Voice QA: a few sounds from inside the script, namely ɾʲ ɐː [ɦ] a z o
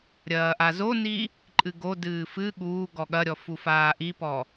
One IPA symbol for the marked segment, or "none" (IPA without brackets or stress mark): ʔ